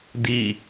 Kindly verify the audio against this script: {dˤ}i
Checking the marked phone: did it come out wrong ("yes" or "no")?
yes